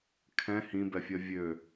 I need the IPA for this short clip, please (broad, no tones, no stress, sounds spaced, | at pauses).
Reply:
kʰ ɛ̃ h ĩ b ɛ fʲ ɜ vʲ ø